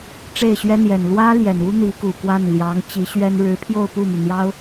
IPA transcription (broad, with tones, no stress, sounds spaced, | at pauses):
ʈ͡ʂ e˥˩ ɪ̯ ɕ ɥ ɛ˥ n̪ j ɛ˨˩ n l w ä˥ l j ɛ˨˩ n u˥ n̪ i˧˥ k u˨˩ k w a˥˩ n l j ɑ˧˥ ŋ t͡ɕ i˧˥ ɕ ɥ ɛ˥ n ɻ ɻ̩˧˥ pʰ j o˥˧ ʊ̯ p u˥˩ m y˩ n̪ j ɑ˥ ʊ̯